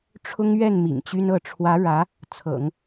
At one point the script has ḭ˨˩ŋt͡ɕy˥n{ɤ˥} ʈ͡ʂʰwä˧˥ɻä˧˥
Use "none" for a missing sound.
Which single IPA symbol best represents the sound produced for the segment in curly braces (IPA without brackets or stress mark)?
ɤ˥˩